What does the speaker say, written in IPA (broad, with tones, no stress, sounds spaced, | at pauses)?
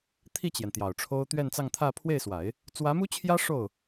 t̪ʰ i˥˩ t͡ɕ j ɛ˩ n t̪ j ɑ˨˩ ʊ̯ ʈ͡ʂʰ o˥ ʊ̯ t̪ ɥ ɛ˥˧ n t͡s ɑ˥˧ ŋ t̪ʰ ä˥˧ pʰ w e˥˩ ɪ̯ s w a˨˩˦ ɪ̯ | t͡s w ä˧˥ m u˥ t͡ɕʰ j ä˥ ʂ o˥˩ ʊ̯